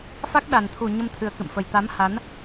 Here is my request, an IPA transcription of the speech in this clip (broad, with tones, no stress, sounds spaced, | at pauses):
f a˦˥ k̚ ɗ a˨˩ n t̪ʰ u˨˩ ɲ ə˧ m t̪ʰ ɨ˨˩ ə̯ k ɨ̰˧˨ m f ə˨˩ j t̪ a˨˦ m h a˨˦ n